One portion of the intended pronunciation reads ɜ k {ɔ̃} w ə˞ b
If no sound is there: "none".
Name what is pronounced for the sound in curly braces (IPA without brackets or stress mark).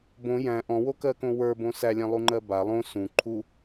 õ